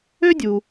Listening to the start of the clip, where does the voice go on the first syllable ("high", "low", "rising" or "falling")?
high